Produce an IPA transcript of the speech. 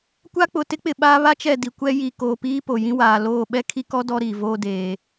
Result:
kʷ a˦ k͡p ʊ˨ t ɪ˦ k͡p ɪ˨ ɓ aː˦ β a˦ t͡ʃ ɛ˦˨ d i˨ kʷ ɛ˦ j i˨ k oː˨ p iː˦ p o˨ j ĩ˦ w aː˨ l oː˦˨ ɓ ɛ˦ kʰ i˦ k ɔ˦ d ɔ˦ ɾ iː˨ v oː˦ d eː˨

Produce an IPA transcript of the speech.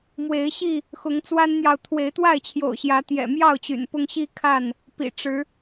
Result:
m w e˨˦ ɪ̯ ɕ i˥˨ | x ʊ˨˦ ŋ t͡s w a˦ n n̪ j ɑ˨ ʊ̯ t̪ʰ w e˨˦ ɪ̯ t̪ w a˥˨ ɪ̯ t͡ɕʰ j o̰˨˩ ʊ̯ ɕ j ä˨˦ t̪ j ɛ̰˨˩ m j ɑ˥˨ ʊ̯ t͡ɕ y̰˨˩ n p ʊ˦ ŋ ɕ i˦ kʰ a˥˨ n | p ḭ˨˩ ʈ͡ʂ ɻ̩˨˦

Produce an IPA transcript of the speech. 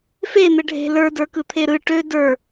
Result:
f e n̪ ɘ ɖʱ e̤ l ə˞ d ə˞ k ɯ t̪ʰ e ɾ ɯ ʈ ø d ə˞

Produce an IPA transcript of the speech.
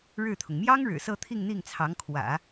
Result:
ɻ ɻ̩˥˩ t̪ʰ ʊ˩ ŋ m j ɑ˥ ŋ ɻ ɻ̩˨˩ s ɤ˥˧ t̪ʰ i˥˧ ŋ n̪ i˥˩ ŋ t͡sʰ ɑ˧˥ ŋ kʰ w ä̰˨˩˦

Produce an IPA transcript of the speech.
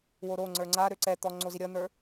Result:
w o ɾ o ŋ͡ǀ ə˞ ŋ͡ǀ a ɾ ø ǀ ɛ t̪ ɔ ŋ͡ǀ o z i ɾʲ ʌ n̪ ə˞

